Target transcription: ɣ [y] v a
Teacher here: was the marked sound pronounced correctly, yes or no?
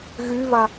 yes